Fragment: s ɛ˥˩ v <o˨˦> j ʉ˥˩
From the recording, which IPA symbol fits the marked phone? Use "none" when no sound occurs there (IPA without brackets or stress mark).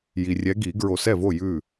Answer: o˥˩